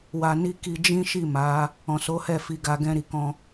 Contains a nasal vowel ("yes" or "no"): yes